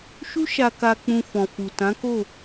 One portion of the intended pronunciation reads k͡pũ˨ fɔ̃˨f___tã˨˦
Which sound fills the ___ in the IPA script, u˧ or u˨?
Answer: u˨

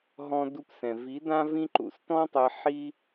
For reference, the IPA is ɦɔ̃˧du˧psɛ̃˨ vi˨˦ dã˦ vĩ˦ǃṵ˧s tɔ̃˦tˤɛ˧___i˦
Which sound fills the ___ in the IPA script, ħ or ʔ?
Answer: ħ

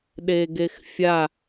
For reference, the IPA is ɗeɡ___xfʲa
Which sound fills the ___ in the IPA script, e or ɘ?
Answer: e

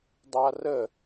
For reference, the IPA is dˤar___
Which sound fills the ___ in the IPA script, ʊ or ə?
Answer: ə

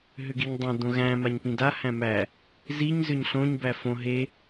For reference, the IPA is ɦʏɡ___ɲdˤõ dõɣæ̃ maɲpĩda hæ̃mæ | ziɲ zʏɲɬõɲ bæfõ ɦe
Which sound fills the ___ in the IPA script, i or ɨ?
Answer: i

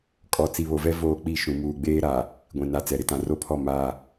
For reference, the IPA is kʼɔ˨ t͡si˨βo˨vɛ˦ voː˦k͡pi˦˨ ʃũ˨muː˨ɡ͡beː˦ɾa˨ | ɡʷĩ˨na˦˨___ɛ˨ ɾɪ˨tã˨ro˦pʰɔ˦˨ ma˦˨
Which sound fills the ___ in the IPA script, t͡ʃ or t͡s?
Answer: t͡s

